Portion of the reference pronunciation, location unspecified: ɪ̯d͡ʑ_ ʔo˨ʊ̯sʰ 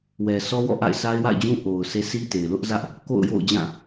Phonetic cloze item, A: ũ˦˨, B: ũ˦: B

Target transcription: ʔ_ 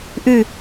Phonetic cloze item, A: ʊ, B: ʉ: B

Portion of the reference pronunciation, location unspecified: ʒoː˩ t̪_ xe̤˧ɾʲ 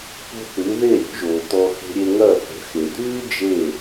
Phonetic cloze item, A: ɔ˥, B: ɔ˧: B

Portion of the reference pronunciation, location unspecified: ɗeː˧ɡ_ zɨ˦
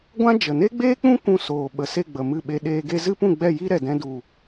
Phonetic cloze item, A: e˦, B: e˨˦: A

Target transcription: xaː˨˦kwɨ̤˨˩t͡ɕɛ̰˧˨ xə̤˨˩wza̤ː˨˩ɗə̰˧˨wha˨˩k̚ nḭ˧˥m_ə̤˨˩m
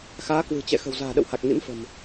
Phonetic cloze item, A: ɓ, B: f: B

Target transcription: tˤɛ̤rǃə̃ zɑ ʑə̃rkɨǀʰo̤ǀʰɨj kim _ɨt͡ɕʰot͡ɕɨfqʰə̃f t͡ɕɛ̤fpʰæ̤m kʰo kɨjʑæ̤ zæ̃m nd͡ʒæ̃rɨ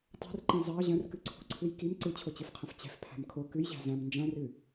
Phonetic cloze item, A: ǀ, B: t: A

